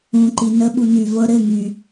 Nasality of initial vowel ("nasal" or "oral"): nasal